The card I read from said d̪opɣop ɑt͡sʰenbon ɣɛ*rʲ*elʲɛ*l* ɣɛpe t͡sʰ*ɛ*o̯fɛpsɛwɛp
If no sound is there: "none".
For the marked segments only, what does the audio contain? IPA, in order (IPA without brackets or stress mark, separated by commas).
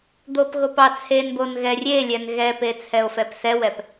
rʲ, n, ɛ